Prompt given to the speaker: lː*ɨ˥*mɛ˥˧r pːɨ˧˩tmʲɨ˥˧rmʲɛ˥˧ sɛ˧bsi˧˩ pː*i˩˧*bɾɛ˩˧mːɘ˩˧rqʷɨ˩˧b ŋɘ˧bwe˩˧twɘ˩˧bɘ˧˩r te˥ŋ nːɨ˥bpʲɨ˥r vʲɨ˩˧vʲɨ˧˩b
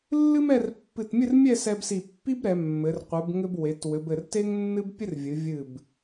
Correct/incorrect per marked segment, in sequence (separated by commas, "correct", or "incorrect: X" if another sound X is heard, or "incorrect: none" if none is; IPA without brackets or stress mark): correct, incorrect: i˥